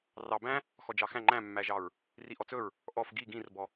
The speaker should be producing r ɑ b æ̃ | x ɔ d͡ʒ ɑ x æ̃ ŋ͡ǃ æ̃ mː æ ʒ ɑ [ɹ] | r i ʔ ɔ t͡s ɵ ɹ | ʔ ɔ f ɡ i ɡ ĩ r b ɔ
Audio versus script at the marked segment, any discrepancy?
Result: no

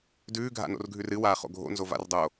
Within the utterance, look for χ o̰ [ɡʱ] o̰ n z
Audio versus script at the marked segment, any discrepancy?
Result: no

